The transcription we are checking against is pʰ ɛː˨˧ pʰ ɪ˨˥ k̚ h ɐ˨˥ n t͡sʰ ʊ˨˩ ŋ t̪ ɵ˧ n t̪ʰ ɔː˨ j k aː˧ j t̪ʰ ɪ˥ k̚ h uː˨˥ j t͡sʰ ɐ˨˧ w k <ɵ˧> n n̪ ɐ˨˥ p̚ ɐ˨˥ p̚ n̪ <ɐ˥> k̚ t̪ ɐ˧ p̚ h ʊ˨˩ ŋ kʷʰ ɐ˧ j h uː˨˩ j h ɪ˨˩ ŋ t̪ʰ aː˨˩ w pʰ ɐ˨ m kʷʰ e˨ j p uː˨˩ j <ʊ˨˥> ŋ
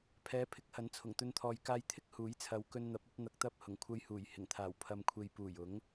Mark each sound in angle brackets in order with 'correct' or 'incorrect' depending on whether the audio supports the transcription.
correct, incorrect: ɐ˨, correct

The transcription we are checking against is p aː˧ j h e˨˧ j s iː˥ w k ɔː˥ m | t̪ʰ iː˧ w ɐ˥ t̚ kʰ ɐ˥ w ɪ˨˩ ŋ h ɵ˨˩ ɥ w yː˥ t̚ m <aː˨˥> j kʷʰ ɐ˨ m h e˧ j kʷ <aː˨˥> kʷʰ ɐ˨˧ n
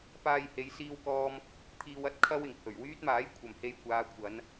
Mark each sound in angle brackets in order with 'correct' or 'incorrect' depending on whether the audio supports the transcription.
correct, incorrect: aː˨˧

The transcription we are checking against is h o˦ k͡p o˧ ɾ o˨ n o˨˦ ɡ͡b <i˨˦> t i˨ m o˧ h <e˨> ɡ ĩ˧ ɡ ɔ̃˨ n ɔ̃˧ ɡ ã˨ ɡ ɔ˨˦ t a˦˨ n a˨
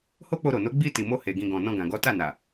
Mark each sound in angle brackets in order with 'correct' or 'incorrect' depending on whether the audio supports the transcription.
incorrect: i˧, correct

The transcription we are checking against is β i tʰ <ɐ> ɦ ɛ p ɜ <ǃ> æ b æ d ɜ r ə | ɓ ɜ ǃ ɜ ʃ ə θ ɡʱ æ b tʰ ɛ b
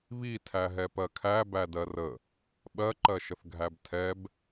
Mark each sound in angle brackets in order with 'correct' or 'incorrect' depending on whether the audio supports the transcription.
incorrect: æ, incorrect: kʰ

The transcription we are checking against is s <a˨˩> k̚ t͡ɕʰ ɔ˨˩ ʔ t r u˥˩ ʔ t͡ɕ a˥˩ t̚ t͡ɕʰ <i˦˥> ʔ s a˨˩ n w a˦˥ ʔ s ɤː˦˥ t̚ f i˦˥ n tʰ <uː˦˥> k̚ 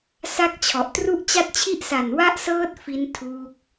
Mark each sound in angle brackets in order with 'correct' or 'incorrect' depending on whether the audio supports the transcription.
incorrect: a˥˩, correct, correct

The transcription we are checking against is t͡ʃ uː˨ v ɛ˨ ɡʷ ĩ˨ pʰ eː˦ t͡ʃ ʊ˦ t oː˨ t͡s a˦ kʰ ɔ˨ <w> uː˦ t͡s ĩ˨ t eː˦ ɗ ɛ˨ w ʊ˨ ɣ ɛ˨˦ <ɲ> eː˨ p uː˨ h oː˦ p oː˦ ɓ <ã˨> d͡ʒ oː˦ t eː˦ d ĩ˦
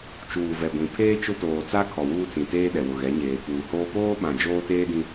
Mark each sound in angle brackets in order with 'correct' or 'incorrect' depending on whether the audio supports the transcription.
correct, correct, correct

